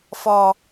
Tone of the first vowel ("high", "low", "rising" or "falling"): low